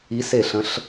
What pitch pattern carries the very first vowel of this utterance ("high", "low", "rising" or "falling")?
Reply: rising